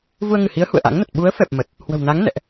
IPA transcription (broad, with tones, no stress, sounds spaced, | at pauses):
v u˧ ə̯ ŋ ɨ˧˩ h i˨˦ ə̯ h ṵ˧˨ ə̯ ʔ a̰˧˥ ŋ n ə˨˩ t̚ ɓ u˨˦ ə̯ f ɛ˨˩ p̚ m ə˨˩ t̚ | h w ə̤˨˩ w n a˨˦ ŋ n ɛ̰˧˨ ʔ